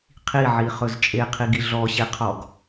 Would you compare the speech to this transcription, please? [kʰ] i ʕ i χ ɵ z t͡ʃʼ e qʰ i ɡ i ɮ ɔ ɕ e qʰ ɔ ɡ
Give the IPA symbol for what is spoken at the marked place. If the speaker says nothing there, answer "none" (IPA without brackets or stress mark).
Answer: qʰ